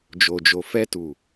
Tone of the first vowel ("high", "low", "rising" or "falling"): low